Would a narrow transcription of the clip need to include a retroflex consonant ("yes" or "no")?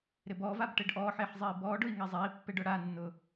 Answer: yes